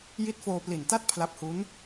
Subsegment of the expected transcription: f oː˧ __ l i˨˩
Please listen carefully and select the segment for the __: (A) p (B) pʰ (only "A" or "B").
A